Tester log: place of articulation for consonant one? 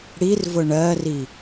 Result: retroflex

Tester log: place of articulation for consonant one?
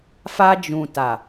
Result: labial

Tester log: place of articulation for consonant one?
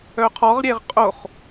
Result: uvular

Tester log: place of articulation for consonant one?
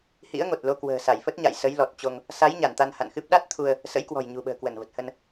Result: glottal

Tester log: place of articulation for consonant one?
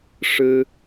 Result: retroflex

